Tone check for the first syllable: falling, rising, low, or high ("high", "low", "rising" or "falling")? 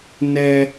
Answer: high